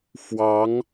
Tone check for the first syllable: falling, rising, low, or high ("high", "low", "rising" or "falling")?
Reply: rising